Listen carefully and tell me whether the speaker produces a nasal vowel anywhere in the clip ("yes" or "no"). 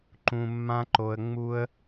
yes